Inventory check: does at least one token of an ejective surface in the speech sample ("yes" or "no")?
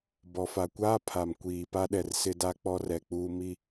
no